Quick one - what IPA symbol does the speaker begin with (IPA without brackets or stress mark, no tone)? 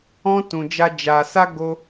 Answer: ɔ̃